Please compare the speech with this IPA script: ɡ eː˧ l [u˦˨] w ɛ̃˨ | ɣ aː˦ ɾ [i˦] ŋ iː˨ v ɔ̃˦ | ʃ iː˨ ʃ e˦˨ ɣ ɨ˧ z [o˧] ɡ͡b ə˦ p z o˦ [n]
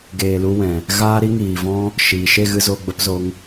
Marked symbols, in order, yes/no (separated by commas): no, yes, yes, no